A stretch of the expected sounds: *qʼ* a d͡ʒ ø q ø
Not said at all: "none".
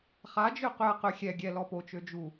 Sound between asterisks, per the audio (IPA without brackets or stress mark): χ